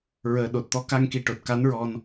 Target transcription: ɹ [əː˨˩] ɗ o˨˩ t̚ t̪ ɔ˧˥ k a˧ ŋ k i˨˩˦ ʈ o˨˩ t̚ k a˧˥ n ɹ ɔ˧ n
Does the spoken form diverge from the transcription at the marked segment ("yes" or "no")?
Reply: no